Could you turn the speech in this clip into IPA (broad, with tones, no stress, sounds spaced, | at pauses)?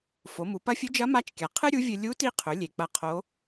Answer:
f o˩˧ m u˩˧ p ɐ˧˥ fʲ ɨ˧˥ d͡ʒ ɐ˧˥ m a˧˥ t͡ʃ kʲ a˩ qʰ ɨ˥ ɾʲ u˧˥ vʲ ɨ˧ lʲ u˧˥ t i˧ qʰ ɵ˩˧ lʲ e˩ k͡p ɐ˧ qʰ o˧˥